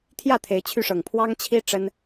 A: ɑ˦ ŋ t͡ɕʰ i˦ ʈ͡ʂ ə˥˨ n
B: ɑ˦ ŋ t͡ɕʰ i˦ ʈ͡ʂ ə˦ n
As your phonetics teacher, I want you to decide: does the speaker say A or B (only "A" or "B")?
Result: B